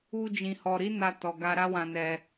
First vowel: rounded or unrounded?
rounded